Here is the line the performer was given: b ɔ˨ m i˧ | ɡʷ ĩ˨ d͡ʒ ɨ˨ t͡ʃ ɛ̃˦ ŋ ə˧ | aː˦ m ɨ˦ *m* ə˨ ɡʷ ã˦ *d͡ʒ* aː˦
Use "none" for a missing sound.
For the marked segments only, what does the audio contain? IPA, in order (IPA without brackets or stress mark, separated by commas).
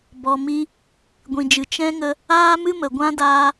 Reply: m, d